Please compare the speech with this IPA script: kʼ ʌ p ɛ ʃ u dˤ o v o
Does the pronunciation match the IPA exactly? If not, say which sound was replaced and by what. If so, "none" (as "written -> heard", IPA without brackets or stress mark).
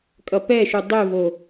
none